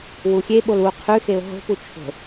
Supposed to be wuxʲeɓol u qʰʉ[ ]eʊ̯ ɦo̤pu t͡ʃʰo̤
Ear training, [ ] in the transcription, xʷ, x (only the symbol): x